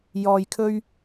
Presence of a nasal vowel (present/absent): absent